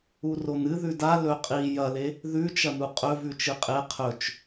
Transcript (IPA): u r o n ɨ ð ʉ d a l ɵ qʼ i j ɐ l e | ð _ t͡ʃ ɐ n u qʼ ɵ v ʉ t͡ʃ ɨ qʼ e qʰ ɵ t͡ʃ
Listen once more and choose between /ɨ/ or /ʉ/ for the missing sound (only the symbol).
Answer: ʉ